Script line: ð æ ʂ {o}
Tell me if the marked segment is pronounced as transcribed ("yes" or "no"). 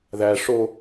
yes